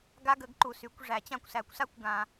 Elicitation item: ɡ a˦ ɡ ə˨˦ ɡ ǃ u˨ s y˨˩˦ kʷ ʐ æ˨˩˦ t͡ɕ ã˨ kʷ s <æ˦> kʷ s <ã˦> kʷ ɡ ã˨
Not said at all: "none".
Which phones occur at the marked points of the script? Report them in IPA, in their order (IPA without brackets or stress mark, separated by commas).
æ˨˩˦, a˦